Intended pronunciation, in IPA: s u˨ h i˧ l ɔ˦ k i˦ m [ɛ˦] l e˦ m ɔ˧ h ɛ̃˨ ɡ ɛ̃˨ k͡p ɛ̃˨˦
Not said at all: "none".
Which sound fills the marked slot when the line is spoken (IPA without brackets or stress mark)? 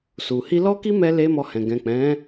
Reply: ɛ˦